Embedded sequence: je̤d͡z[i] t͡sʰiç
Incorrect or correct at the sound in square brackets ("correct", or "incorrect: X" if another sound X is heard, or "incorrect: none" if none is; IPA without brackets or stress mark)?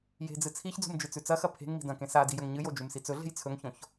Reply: incorrect: ɨ